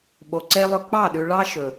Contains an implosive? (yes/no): yes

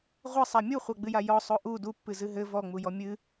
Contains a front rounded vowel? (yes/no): no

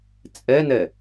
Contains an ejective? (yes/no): yes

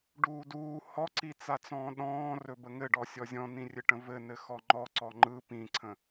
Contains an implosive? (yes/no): yes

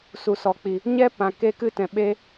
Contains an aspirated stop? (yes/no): no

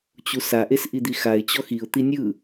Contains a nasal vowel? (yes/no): no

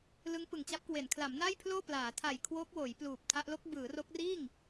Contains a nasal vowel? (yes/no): no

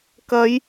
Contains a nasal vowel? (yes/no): no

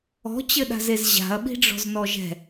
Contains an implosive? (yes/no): yes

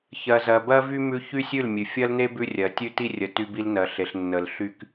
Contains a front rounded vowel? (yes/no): yes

